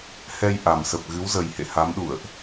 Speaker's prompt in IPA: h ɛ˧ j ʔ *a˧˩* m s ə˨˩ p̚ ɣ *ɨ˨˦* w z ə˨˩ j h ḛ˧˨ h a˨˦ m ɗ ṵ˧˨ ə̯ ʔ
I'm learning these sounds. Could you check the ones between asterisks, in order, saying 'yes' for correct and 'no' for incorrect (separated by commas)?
no, yes